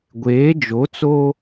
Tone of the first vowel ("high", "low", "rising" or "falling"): rising